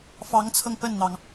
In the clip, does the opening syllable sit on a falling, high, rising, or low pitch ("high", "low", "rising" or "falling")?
rising